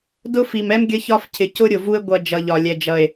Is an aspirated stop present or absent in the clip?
present